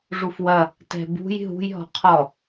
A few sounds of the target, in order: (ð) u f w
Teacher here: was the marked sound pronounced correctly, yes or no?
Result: no